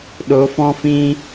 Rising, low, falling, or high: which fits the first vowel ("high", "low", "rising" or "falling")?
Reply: rising